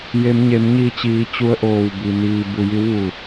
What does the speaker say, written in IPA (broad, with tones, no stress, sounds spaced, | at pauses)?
j e˩˧ m ɲ e˩˧ m ɲ iː˧˩ t͡ɕ iː˩˧ t͡ɕ u˧˥ ə̯ ʔ oː˧˩ w b i˩ n iː˩ b u˩ j i˧˥ w ʋ u˧˩